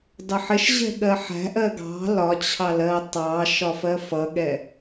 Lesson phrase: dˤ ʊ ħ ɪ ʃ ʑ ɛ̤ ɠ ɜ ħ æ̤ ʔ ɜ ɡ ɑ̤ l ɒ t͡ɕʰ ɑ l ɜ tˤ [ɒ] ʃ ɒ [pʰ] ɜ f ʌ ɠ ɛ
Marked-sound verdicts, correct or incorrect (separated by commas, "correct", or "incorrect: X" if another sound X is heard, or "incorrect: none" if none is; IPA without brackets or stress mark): incorrect: ɑ, incorrect: f